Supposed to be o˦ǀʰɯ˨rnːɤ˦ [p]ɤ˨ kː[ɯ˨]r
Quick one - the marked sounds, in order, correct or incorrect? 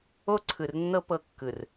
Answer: correct, correct

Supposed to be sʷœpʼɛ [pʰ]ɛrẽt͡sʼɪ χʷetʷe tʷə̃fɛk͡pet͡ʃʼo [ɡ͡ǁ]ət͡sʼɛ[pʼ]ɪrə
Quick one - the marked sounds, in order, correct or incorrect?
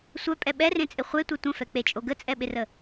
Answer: incorrect, incorrect, incorrect

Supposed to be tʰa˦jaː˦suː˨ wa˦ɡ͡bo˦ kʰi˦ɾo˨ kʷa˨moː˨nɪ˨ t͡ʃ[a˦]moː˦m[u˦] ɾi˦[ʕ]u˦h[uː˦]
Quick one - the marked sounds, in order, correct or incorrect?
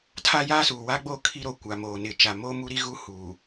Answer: incorrect, correct, incorrect, incorrect

